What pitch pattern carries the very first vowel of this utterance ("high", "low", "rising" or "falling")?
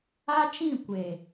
high